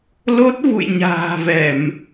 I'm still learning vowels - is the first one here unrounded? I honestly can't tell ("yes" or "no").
no